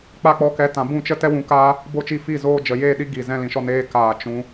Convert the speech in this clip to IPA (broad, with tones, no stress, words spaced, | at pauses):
k͡pa˧k͡pɔ˨˦kɛ˨˦ tã˨bũ˦˨t͡ʃə˦ tɛ˦wũ˧kaː˦ | bo˦˨t͡ʃi˦˨fi˦˨ zoː˧d͡ʒə˨ jeː˦˨ɗi˦ ɡi˨ zɛ̃˧lĩ˨ʃɔ˧ neː˦ kaː˨ t͡ʃũ˦